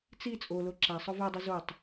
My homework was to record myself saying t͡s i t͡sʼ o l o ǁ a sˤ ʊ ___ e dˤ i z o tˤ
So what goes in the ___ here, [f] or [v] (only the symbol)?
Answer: v